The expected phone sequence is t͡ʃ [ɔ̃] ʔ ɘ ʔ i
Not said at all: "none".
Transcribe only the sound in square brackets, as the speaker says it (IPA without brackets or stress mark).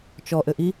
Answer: ɔ